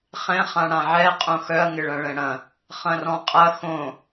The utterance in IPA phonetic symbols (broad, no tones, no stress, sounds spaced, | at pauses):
χ ɛ̃ χ ã ɽ ã ʕ ɛ qʼ õ x œ ɐ̯ ŋ ɪ ɭ ɐ̃ ɭ ɛ̃ ɽ ɐ̃ | χ ɐ̃ r ɔ̃ qʼ ɐ x õ